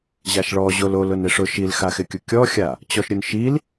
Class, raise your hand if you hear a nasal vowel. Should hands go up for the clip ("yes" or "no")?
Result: no